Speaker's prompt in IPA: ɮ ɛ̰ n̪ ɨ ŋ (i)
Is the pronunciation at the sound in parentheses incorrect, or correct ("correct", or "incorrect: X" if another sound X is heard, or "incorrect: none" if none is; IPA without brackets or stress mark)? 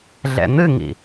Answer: incorrect: ḭ